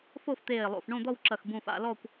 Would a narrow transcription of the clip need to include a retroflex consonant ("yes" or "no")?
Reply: yes